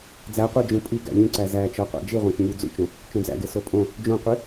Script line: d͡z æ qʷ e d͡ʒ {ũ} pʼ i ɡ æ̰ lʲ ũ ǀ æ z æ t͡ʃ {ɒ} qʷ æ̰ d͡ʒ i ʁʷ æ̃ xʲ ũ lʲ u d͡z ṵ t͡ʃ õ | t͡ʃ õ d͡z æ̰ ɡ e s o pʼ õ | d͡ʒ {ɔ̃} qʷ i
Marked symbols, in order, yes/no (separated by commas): yes, yes, no